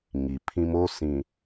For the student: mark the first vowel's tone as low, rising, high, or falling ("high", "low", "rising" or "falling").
low